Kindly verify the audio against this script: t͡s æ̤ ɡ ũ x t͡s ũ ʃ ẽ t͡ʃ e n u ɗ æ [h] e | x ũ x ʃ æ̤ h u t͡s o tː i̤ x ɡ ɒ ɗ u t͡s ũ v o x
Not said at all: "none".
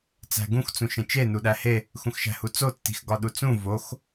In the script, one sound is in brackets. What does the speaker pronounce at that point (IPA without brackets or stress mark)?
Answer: h